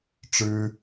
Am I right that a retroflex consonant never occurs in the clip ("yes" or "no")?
no